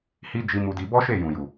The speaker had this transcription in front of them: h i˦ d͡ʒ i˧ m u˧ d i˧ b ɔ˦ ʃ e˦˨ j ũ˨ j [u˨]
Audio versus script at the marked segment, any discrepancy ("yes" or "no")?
no